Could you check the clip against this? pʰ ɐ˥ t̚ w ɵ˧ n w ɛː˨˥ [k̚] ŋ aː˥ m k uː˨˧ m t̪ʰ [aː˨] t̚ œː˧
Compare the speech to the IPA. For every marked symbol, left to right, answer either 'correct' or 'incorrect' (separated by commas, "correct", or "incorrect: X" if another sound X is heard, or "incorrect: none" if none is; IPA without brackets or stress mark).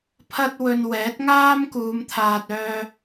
incorrect: t̚, correct